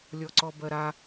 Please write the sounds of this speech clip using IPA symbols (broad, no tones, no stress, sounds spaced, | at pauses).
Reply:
lʲ ɔ ǀ ɔ b ɜ ɾ a